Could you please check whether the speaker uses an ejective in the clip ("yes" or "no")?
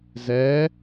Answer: no